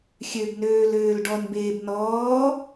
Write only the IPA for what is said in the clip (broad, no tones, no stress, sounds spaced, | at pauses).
xʲ ø b n øː l øː l ɖ ɔ n b eː b n ɔː